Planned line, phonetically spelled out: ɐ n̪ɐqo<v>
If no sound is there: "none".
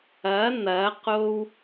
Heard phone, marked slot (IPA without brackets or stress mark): w